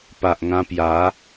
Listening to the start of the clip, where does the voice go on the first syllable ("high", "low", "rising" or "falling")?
low